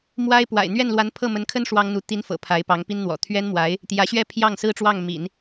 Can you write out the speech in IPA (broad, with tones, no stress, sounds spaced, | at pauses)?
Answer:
m w a˥ ɪ̯ p w a̰˨˩ ɪ̯ n̪ ɥ ɛ˥˩ n l w a˧˥ n pʰ ɤ˥˩ m ə˧˥ n kʰ ə˥ n ʂ w ɑ˥ ŋ n̪ u˧˥ t̪ i˧˥ n f ɤ̰˨˩ pʰ a˧˥ ɪ̯ p ɑ˧˥ ŋ p i˥ n n̪ w ɔ̰˨˩ t̪ʰ ɥ ɛ˥ n m w a˧˥ ɪ̯ | t̪ j ä˧˥ ɕ ɥ ɛ˥ pʰ j ɑ˥˩ ŋ s ɹ̩˥ ʈ͡ʂ w ɑ˥˩ ŋ m ḭ˨˩˦ n